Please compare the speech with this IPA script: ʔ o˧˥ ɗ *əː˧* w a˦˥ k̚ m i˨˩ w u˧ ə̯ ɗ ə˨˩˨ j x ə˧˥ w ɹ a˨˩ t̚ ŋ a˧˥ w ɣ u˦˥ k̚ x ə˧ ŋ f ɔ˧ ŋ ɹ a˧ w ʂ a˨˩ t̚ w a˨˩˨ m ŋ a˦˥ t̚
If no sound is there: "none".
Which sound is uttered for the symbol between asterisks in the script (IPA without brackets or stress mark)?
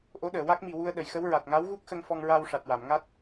əː˨˩˨